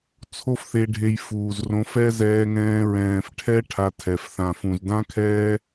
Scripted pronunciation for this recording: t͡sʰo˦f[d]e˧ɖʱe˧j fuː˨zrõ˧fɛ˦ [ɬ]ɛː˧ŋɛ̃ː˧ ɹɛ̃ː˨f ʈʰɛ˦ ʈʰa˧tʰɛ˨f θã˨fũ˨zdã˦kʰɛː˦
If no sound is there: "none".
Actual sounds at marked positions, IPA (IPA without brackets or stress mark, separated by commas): θ, z